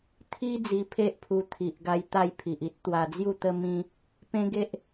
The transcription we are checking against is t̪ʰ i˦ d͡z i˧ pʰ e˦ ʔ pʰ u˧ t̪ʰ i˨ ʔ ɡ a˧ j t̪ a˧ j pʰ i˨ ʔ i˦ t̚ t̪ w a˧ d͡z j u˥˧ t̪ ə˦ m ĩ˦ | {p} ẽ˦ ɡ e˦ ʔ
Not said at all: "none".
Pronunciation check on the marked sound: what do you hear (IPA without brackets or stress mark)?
p